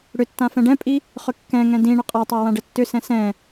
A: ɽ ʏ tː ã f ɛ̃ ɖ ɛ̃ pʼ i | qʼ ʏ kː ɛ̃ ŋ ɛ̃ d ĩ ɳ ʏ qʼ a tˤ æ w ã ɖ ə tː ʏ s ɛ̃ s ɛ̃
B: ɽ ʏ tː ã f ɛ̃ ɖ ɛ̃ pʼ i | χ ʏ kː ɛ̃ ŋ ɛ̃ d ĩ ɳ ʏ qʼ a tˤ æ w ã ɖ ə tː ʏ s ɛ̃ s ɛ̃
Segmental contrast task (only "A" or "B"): B